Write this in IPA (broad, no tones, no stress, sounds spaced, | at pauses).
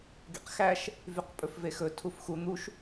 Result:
ɡ ḛ q x æ ʃ | v y q pʼ ɵ f v e x ɵ tʰ u f x u n̪ u ʃ